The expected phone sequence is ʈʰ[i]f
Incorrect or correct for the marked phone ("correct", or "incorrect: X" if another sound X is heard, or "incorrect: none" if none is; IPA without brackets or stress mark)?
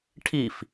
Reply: correct